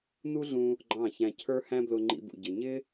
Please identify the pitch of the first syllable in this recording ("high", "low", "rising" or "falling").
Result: high